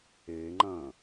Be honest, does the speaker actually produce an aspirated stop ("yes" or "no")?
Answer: no